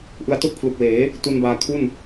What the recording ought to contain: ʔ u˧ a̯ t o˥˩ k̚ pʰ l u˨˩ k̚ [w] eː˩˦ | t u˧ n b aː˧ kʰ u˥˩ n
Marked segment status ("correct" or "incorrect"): correct